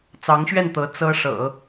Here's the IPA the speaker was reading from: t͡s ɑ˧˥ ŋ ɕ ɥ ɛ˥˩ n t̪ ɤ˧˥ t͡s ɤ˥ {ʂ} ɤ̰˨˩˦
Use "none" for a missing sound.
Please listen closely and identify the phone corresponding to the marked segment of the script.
ʂ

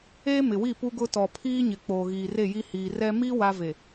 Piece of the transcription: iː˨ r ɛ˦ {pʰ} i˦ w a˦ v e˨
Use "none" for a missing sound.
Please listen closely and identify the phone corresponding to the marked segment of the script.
m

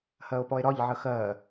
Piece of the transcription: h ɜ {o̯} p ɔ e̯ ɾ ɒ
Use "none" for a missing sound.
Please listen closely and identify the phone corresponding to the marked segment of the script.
o̯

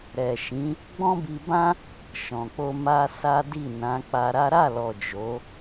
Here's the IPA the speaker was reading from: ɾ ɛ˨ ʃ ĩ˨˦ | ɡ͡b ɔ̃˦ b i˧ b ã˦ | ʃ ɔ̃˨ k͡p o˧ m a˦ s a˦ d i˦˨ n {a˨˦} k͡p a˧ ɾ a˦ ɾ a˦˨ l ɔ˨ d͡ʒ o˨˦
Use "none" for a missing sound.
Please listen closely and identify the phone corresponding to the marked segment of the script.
ã˨˦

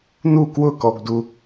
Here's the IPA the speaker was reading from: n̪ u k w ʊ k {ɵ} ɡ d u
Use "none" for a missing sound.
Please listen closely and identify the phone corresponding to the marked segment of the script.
ɔ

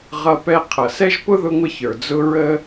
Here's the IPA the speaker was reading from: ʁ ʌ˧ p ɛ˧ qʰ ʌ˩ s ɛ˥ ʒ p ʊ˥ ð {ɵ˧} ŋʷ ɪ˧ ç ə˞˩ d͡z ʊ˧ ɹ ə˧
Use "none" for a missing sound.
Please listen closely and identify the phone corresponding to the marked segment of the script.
ʊ˧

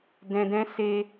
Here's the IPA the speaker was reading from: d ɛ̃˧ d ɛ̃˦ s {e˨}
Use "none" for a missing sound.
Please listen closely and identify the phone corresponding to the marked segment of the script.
e˦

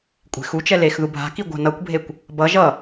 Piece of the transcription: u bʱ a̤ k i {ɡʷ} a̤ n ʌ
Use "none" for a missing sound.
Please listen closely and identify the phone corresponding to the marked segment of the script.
ɡʷ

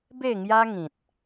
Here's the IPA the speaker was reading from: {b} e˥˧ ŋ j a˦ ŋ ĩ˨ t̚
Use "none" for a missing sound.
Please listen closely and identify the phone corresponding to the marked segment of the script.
b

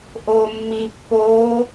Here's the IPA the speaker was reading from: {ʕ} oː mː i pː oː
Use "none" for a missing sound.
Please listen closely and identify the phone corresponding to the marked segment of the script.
ʔ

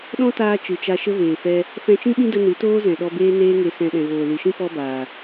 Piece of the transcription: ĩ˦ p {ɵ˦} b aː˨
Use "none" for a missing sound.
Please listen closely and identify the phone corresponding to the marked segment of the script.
ɔ˦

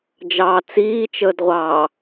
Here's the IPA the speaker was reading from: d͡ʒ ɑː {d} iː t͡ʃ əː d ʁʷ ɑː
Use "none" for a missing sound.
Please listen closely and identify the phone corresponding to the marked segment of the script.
t͡s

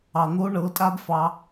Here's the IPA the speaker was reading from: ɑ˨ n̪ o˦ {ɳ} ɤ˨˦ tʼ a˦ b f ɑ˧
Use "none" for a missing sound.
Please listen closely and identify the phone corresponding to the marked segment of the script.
ɳ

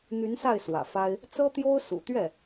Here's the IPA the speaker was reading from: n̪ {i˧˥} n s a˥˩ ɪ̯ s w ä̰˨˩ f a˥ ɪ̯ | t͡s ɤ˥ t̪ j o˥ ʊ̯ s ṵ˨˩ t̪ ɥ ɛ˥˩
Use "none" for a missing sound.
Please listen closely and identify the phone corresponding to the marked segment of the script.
y˧˥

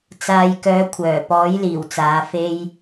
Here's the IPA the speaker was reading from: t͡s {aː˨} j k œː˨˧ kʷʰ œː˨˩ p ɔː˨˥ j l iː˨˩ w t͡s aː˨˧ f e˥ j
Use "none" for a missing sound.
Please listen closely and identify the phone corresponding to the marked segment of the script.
aː˨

